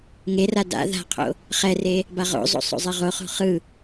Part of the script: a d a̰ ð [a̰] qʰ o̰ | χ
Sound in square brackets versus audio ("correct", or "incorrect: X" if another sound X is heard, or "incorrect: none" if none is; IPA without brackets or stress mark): incorrect: a̤